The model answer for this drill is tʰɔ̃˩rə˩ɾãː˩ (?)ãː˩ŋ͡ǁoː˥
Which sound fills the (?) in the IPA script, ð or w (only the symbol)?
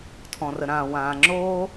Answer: w